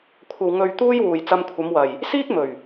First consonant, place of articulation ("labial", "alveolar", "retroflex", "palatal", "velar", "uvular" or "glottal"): velar